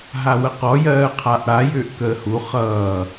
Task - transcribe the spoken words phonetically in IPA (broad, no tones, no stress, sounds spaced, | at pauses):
ɦ a w ə q ɔ j ɜː qʰ a ʔ ɽ a j ʏː ʔ k əː h u χ ʌː